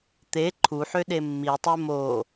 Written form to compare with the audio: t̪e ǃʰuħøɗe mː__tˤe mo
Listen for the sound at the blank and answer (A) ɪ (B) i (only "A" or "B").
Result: B